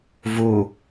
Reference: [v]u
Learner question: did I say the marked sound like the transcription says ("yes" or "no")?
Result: yes